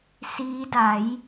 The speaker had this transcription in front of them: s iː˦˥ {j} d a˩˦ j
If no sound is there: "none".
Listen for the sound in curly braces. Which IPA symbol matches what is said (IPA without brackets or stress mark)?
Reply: none